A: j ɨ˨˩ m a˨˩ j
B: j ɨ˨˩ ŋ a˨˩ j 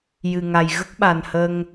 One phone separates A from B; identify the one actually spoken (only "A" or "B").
B